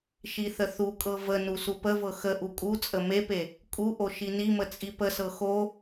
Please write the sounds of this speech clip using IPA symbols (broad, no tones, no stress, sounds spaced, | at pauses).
ʃ i θ ə θ u kʼ ɤ v ə n u s u p ə v ɤ x ə ʔ u kʼ u t͡sʼ ə m e p e | kʼ u ʔ o ʃ i n i m ə t͡sʼ i p ə s ɤ x o